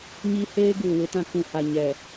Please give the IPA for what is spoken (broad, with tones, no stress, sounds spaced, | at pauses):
ɲ i˦ h eː˦ ɡ uː˨ w ɪ˦ t ã˦ k ũ˨ h a˨ ɲ ɛ˨